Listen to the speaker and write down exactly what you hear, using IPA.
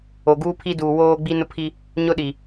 o˨ɡuː˦pʰi˦duː˨ woː˦ɡ͡bi˦ nʊ˦pʰi˦ | ɲʊ˦ɗi˨

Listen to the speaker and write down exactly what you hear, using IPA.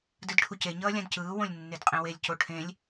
dɯdʈʰuce ɲʌːlʲãdcɯː wõlʲnːedqʼẽwelʲ coʈʰẽlʲ

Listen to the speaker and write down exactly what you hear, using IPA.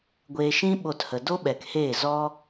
ɡʷeː˧ʃĩ˦ ɓo˧thə˨ do˦ɓɛ˨k heː˦˨zɔ˦

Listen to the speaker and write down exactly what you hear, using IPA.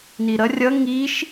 niɾʌ rʲʌ ŋiʃ

